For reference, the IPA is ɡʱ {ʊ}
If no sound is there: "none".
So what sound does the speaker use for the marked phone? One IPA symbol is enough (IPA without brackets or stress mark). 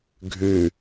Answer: ʉ